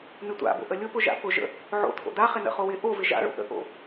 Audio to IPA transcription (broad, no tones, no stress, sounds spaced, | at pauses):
n̪ ɪ tʷ a̰ b o̰ ʔ ə lʲ ʊ p ʊ ʒ a̰ p ʊ ʒ ə̰ | ʕ o̰ t̪ʰ o̰ d̪ a χ ɪ n ə̰ χ o w ɪ ʔ o v ɪ ʒ a̰ ɭ o̰ ʔ ə̰ ʔ o̰